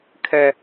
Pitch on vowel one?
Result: high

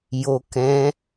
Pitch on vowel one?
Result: low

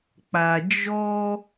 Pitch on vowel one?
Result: low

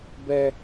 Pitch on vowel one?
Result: high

